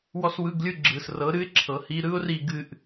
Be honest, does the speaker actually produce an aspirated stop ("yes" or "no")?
yes